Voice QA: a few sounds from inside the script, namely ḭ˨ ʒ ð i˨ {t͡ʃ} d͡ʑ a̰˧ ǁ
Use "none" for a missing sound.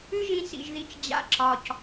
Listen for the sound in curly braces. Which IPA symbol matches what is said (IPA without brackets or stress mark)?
t͡ʃ